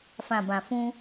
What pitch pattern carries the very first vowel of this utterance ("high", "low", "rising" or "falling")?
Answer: low